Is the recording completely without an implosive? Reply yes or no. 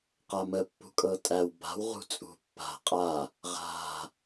yes